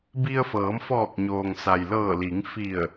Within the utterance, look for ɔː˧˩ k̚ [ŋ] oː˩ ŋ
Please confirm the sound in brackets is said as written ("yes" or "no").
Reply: no